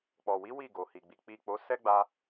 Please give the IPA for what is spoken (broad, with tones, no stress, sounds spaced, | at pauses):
k͡p ɔ˨ w i˨˦ w i˦˨ ɡ o˨ h i˨ ɡ͡b i˨ k͡p i˨ k͡p o˨˦ s ɛ˦ ɡ͡b a˧